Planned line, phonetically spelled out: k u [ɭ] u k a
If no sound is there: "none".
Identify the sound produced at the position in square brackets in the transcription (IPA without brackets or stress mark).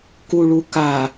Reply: ɭ